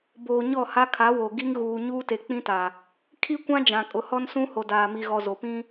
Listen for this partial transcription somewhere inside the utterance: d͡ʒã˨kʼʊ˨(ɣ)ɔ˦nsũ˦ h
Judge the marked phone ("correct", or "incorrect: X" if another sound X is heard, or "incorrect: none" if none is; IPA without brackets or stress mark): incorrect: h